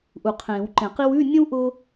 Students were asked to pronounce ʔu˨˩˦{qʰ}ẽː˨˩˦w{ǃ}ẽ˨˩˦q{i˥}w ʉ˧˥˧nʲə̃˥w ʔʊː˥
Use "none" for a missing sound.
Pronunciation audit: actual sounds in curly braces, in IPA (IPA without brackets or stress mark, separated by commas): qʰ, ǃ, i˥